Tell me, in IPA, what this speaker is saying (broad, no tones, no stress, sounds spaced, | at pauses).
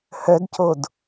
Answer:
h œ d c o d